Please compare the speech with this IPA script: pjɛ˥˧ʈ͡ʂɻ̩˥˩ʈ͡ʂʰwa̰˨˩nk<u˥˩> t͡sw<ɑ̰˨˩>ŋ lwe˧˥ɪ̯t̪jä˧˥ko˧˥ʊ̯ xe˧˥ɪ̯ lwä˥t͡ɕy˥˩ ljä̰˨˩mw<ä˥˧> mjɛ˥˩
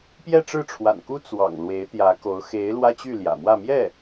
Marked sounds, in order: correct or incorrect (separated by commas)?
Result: incorrect, correct, correct